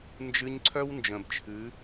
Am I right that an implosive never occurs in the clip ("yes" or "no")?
yes